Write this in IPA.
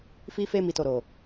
f i˧ f e˧ m i˨ t o˨ ɾ o˨

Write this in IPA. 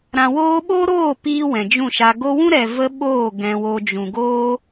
ɾ ã˨ w oː˧ ɓ o˦ ɾ oː˦˨ p iː˧ w ɛ̃˨ d͡ʒ ũ˦˨ ʃ a˧ ɡ o˧ w ũ˦ ɾ ɛ˨ v ə˦ ɓ oː˦˨ ɡ ɛ̃˨ w o˨ d͡ʒ ũ˨ ɡ oː˦

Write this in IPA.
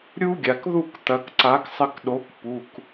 ɾʲ u˦ ɡʲ a˩ k ð u˦˨ k t̪ ɐ˩˧ k ǀ a˨˥ k sˤ ɘ˦˨ k ɗ o˨˥ k p u˩˧˩ k

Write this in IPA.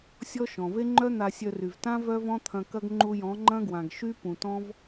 sʲ ɔ˦ ʃ ɔ̃˨ v e˦ ŋ͡ǃ œ˦ n̪ a˧ sʲ œ˧ r y˨ v t ã˦ v œ˦ v ɔ̃˦ t̪ʰ ɐ̃˧ k ɐ˦ ɡ ŋ͡ǃ u˧ j ɔ̃˨˦ ŋ͡ǃ ɐ̃˦ ɡ w ã˨ ɡ ʃ y˦ p ũ˨ t ɔ̃˦ v

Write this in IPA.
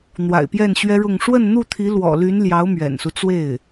n̪ w a̰˨˩ ɪ̯ p j ɛ˥˩ n ɕ ɥ ɛ˥ ɻ ʊ˥˧ ŋ ʂ w ə˥˧ n n̪ u˥˩ t̪ʰ i˧˥ l w ɔ̰˨˩ l y˧˥ n l j ɑ˧˥ ʊ̯ m ɥ ɛ̰˨˩ n s u˦ t͡s w e˥˩ ɪ̯

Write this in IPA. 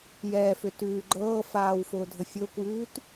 j ɛː f ʏ t ʉː ɡ͡ǃ ɤː f aː w f ʊː dʱ ə fʲ ʊː kʷ j ʉː t

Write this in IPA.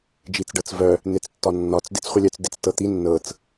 d͡ʒ i t͡s ɖ ɤ t͡s v œ | n̪ e t͡s tː ɒ nː ɒ t͡s d e t͡s χʷ ə lʲ œ t͡s d e t͡s t ɤ t̪ i nː ɤ t͡s

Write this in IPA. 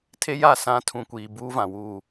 tʰ e˦ j a˦˨ s ã˦ tʰ ũ˨ kʷ iː˨ b uː˦ v ã˨ w uː˦˨

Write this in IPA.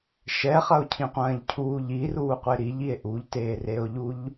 ʃ ɛ χ ɐ o̯ cʰ ĩ qʷ ɐ̃ː ʎ cʰ uː ʎ i r uː qʷ e ɾ i ʎ i e̯ ʔ u ʎ t eː r e o̯ ʎ u ʎ

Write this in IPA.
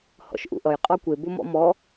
h ɔ̰ ʃ ʔ ṵ ʔ ʌ j qʼ ɔ kʷ e b o m ɔ̰ m ɔ

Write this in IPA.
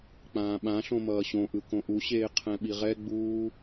k͡p ãː ɓ ã ɬ õ m ʌː ɕ õ ʔ ɯ k õ ʔ u ɕ eː qʰ ɛ̃ ɓ i ʁ ɛ ɡ͡b uː

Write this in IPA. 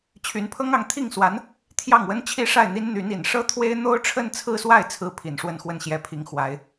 t͡ɕʰ y˧˥ n pʰ ɤ˥ ŋ ɑ˥˧ ŋ t̪ʰ i˥˩ ŋ s w a˧˥ n | t̪ʰ j ɑ˥˩ ŋ w ə˥ n t͡ɕʰ i˥ ʂ a˥˩ ɪ̯ n̪ i˥ n n̪ y˧˥ n i˨˩ n ʂ ɤ˥ t̪ʰ w e˥ ɪ̯ n̪ o˥ ʊ̯ ʈ͡ʂʰ ə˥˧ n t͡sʰ ɹ̩˥˧ s w a˥˩ ɪ̯ t͡sʰ ɹ̩˥ pʰ i˨˩ n ʂ w ə˥˧ n x w ə˥˩ n ɕ j ɛ˧˥ pʰ i˨˩ ŋ x w a˧˥ ɪ̯

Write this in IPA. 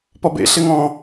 p ɔ b ḛ ɬ ɪ ŋ ɔ̃

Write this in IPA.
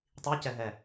tˤ iː c ɛ ɦ ɛ

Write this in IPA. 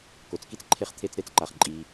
k o˩ t͡s k i˥ t͡s ǃʰ e˧ χ t̪ʰ e˧ t͡s ɾ e˥ t͡s ǃ a˩ χ ǃʼ i˩

